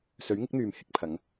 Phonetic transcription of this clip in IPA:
sɵ˨˥ɥŋɪ˨˥k̚n̪yː˨m hɪ˧k̚pʰɐ˨˥ŋ

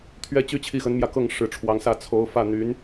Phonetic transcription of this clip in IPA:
t̪ʰɥɛ˥ t͡ɕy˥t͡ɕʰi˥˩xə˧˥nmjä˧ kɤ˥˩ŋ ʂɻ̩˧˥ʈ͡ʂʰwɑ˧˥ŋsä˥˩ t͡sʰo˧˥ʊ̯fä˥˩n̪y˧˥n

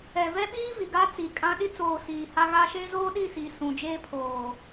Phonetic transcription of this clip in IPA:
ɛ˨vɛ˦ɓiː˦ vi˨ɡa˦t͡si˨kʼã˦ ɗi˦t͡soː˨ siː˨ha˦ɣaː˦ ʃeː˦zoː˦ɗi˦˨ si˨ sũ˨d͡ʒeː˦pʰoː˨

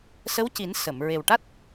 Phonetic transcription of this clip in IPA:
sə˧˥wci˨˩˦n sə˨˩˨m ɹe˨˩wʈa˦˥t̚

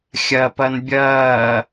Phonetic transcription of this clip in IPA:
xʲɐpɐn bʲɐː

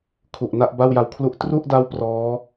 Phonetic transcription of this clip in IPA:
kʰu˨˩ʔna˥˩ʔ ba˥˩wja˧wkʰlu˥˩ʔ tru˥˩ʔda˦˥w prɔː˦˥

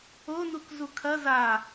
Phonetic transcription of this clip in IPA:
onuk zukʰɐ za

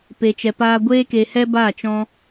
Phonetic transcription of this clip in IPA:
pe˧t͡ʃɛ˧paː˦ ɡʷeː˦ke˧hɛ˦ ba˦˨t͡ʃɔ̃˦

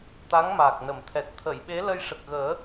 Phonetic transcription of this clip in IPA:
t̪a˧˥ŋmaː˨˩k̚ nə˨˩˨mt̪ʰɛ˨˩t̚ t̪ʰə˨˩˨jɓe˧˥ lə˧jʂə˨˩k̚ɣəː˨˩˦

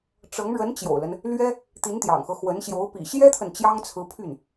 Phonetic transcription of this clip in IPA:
ʈ͡ʂɤ˧˥ŋ ɻə˧˥nt͡ɕjo̰˨˩ʊ̯lə˦n | lɥɛ˥ | t̪i˧˥nt̪jɑ̰˨˩ŋxɤ˦ xwə˧˥nɕjo˧˥ʊ̯ pḭ˨˩ɕjɛ˥t̪ʰə˨n t͡ɕjɑ˥ŋt͡sʰɹ̩˧˥pʰy˥˩n

